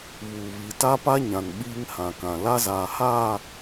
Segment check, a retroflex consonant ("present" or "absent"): absent